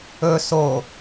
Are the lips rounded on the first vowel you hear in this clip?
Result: yes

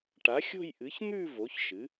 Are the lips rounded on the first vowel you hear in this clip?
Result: no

